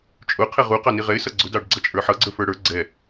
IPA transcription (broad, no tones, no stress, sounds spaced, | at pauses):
t͡ʃʼ ʊ qʰ ɛ ʁ u q ɑ n i ʁ ɛ ɪ̯ s ʌ ɡ͡ǀ ʊ d ɑ ɖ ɡ͡ǀ ʌ t͡ʃʼ ə˞ ħ ʌ ɡ͡ǀ ə˞ f ə˞ ɽ ə˞ ɡ͡ǀ ɛ